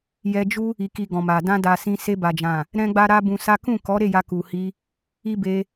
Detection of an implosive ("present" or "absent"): absent